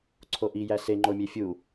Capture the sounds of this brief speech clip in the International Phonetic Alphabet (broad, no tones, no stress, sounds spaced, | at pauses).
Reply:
ǀʰ o ʔ i j æ s e ŋ͡ǃ o mʲ e fʲ u